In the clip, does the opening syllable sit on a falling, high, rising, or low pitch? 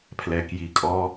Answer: low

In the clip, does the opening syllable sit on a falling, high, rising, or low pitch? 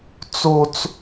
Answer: high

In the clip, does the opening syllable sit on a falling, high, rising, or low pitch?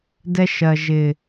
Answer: high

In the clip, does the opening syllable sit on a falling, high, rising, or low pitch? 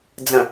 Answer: low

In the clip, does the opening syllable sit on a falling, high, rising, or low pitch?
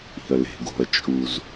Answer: low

